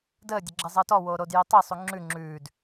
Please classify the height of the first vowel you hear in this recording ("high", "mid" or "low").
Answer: mid